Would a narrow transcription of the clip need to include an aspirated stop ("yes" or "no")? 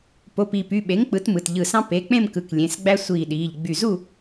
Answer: no